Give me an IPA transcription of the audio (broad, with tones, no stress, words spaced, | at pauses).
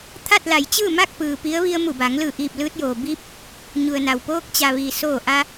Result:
t̪ʰa˥˨t̚la˩˧jt͡ɕɯː˥˨ma˥˨k̚ pɯː˩ pi˧˥ə̯ ʋi˧ə̯mu˧˩ba˩˧ŋ lɯː˧˩ʔiː˧˩p̚ lɯː˧t̚joː˩ biː˧˥p̚ | ɲu˩ə̯na˩w poː˧˥k̚t͡ɕa˩ ʋiː˩soː˧˩ ʔa˧